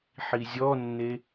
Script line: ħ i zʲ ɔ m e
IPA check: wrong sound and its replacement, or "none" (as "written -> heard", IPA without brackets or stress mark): m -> nː